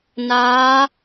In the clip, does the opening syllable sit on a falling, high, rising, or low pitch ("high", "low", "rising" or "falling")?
rising